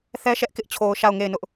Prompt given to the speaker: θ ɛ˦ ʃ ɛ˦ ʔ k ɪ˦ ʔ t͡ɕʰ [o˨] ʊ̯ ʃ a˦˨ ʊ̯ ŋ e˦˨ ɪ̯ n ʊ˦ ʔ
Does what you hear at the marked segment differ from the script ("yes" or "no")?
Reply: no